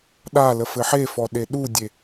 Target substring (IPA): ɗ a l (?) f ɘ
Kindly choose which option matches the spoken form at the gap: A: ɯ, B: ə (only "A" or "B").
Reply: B